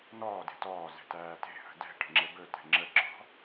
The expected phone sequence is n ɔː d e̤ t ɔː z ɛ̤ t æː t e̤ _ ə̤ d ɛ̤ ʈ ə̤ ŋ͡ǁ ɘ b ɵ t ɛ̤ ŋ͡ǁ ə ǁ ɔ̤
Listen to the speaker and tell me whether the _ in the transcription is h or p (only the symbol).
h